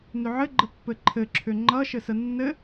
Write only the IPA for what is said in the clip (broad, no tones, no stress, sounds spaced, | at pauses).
n ʏ ʕ ɘ ɡ͡ǃ ə pː ɘ ǃʰ ɘ ǁʰ ʏ ŋ͡ǃ ʌ ʃ ɘ s ə nː ɘ